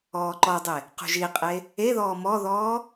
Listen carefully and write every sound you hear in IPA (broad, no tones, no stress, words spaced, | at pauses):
ɔːǃɔdˤe | qṳʒiqʼe | eðɔː mɔðɔː